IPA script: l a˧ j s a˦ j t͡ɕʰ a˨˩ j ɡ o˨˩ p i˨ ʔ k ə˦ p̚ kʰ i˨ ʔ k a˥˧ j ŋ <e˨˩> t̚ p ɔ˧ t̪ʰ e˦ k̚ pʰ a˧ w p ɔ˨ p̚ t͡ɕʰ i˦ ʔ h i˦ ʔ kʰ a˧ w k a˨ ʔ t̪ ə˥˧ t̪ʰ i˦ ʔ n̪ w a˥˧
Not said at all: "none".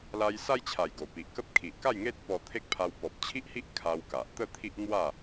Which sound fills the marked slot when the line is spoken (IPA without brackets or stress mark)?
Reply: e˦